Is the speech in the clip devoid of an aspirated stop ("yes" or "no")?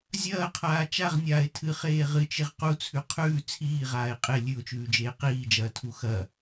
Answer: no